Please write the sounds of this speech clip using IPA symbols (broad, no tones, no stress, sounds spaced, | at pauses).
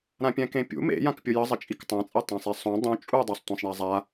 ɾ ã pʲ ɛ̃ k ẽ pʲ ṵ m ḛ j ã k pʲ ʊ j ə zˤ ə t͡ʃʼ i k tˤ ã t͡sʼ ɛ tˤ ã sˤ ɛ sˤ ũ dˤ ũ t͡ʃʼ u dˤ a sˤ tʷ ɛ̃ sˤ ɳ a zˤ a